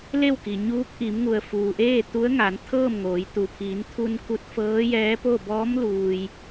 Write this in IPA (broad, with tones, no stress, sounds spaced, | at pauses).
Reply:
l e˥˨ w k i˩ ɲ uː˧˥ k̚ ʔ i˩˧ m ŋ u˩ ə̯ f uː˩ ʔ eː˥˨ t̪ u˧˥ ə̯ ŋ aː˩˧ n t̪ʰ ɤː˥˨ m ŋ oː˩˧ j t̪ u˩ pʰ iː˩˧ n t̪ʰ u˧ n k u˧˥ t̚ f ɤː˧˥ j ɛː˧˥ p o˥˨ b ɔː˧˥ m l uː˩ j